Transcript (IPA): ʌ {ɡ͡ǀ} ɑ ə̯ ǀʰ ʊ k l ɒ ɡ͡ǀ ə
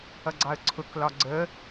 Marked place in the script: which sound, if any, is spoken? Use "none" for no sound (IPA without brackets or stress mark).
ɡ͡ǀ